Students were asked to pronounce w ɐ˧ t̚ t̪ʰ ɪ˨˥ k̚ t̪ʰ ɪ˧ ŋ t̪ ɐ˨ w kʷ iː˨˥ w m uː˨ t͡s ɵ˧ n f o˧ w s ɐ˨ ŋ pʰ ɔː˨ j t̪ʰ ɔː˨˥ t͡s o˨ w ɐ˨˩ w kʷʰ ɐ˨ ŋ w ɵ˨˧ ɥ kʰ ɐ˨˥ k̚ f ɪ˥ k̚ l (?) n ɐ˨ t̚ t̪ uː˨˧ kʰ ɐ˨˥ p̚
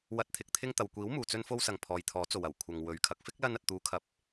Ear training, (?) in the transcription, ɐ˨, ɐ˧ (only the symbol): ɐ˧